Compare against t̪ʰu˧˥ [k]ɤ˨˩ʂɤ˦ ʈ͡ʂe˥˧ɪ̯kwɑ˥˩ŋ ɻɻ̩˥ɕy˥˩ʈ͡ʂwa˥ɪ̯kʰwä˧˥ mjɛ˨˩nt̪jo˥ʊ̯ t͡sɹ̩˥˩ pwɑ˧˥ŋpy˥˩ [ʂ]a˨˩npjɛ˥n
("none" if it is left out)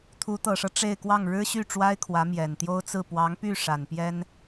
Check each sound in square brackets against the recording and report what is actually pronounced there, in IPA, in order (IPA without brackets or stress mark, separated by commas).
t̪, ʂ